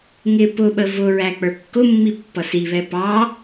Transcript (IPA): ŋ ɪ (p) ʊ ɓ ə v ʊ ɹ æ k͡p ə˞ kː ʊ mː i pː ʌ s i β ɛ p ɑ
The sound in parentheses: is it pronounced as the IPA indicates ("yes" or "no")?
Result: yes